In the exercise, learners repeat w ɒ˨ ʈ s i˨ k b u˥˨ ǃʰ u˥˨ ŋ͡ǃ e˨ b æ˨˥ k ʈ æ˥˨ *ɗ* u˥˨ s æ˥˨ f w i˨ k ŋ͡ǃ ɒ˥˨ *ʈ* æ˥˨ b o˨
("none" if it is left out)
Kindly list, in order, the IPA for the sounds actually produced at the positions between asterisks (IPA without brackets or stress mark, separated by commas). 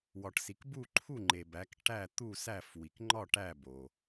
t̪, ʈ